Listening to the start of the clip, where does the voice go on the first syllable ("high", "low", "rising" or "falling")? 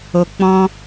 low